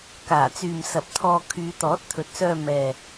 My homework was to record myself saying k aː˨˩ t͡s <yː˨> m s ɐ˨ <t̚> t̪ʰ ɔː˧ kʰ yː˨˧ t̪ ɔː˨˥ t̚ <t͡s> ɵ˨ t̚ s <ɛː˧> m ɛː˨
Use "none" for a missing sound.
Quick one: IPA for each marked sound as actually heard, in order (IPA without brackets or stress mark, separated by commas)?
yː˨, p̚, t̪ʰ, œː˧